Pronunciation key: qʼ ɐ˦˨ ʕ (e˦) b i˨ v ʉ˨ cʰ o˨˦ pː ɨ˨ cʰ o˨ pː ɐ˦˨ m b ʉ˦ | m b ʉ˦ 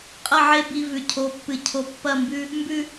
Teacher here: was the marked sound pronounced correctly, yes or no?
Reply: yes